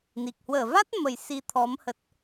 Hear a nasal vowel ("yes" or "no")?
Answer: no